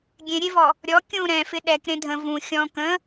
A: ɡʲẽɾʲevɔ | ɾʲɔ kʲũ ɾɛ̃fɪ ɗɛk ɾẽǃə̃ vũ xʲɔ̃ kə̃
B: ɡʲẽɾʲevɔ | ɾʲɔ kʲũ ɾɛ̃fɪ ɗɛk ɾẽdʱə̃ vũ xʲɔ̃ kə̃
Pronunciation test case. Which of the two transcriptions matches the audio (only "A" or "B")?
B